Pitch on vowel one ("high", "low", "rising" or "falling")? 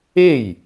falling